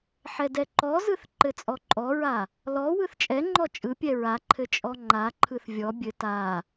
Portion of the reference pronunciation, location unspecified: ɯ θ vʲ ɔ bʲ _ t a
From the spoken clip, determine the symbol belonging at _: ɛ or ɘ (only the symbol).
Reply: ɘ